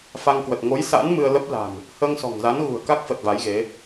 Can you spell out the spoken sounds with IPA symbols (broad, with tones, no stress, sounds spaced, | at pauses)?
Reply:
f a˧ ŋ k w ə˨˩ t̚ ŋ o˨˦ j s a̰ː˧˥ n m ɨ˧ ə̯ l ə˦˥ p̚ l a̤˨˩ n | h əː˧ ŋ s ɔ̤˨˩ ŋ z a˨˦ n ɣ ṳ˨˩ ə̯ k a˦˥ k̚ f ə˨˩ t̚ v a˨˦ j ɣ e˨˦